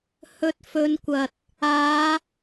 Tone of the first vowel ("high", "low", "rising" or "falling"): low